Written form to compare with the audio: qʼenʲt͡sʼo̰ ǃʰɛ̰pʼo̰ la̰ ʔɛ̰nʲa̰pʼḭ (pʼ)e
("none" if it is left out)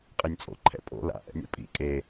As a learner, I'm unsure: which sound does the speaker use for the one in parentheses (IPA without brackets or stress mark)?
kʼ